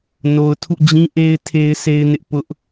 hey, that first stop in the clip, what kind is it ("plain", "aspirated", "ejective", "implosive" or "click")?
aspirated